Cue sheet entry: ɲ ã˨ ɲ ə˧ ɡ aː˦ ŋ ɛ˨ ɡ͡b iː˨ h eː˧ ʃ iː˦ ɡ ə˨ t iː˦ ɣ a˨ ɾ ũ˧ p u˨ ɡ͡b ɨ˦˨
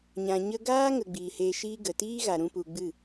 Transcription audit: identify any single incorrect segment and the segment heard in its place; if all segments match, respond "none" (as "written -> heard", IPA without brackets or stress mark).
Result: ɛ˨ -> ə˨